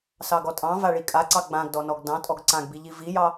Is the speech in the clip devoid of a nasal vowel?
no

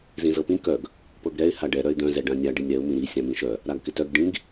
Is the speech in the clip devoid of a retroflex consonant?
no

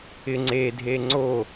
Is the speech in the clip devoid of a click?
no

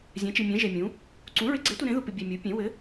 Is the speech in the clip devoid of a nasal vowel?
no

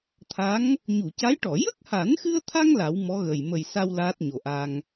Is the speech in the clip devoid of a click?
yes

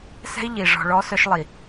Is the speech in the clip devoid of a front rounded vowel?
no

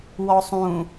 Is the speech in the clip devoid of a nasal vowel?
no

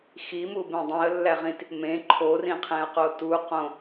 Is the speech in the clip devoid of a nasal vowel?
no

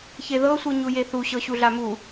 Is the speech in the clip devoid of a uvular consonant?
yes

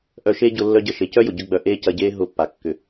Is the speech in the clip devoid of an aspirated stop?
yes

